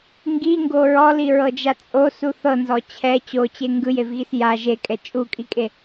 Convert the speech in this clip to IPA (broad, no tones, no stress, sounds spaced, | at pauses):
ŋ ɡ i ŋ ɡ o ɹ ɔ l i ɹ ɤ d͡ʒ a t͡sʼ o s u θ ɤ n z ɔ t͡ɕʰ ɛ t͡ɕ o t͡ɕ e ŋ ɡ ɯ j e v ɣ i s j a ʒ e kʼ ɛ t͡ʃʼ u kʼ i kʼ e